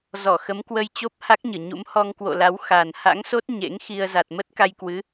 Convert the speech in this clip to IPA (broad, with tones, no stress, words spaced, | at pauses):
zɔ˧˩xə˨˦mkwə˧j t͡ɕo˦˥p̚ha˦˥k̚ɲɨ˧˩ ɲṵ˧˥m hɔ˧ŋkwo̰˧˨la˨˦w xa˨˩nha̰˧˥ŋso˦˥t̚ ɲḛ˧˥ŋxi˧ə̯ za˨˩t̚mə˦˥t̚ ka˧jkwɨ˨˦